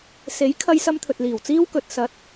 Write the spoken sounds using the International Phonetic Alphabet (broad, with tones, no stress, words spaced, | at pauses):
se˨˥jkʰɐ˧jsɐ˧m t̪ʰɵ˨t̚liː˨˩wt͡siː˥w kɵ˨t̚sɐ˨˥t̚